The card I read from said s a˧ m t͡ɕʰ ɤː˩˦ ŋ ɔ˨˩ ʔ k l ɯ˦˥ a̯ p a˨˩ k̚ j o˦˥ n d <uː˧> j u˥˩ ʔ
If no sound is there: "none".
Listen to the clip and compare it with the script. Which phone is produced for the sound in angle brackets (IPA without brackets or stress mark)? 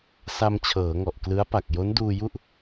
uː˧